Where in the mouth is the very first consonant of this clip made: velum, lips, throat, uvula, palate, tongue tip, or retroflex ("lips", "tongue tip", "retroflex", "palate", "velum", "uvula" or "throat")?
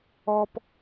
lips